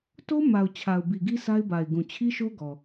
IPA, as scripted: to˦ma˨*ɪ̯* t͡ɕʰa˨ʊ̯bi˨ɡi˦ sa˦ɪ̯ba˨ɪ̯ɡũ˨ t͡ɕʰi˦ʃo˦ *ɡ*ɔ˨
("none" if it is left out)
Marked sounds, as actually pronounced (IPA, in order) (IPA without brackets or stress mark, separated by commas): ʊ̯, ɡ